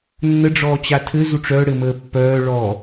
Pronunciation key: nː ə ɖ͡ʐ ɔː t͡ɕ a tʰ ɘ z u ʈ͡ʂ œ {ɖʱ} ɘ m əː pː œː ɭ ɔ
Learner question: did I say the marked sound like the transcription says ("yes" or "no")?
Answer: no